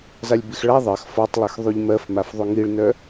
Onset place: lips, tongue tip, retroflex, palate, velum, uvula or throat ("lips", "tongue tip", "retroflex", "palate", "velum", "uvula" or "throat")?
tongue tip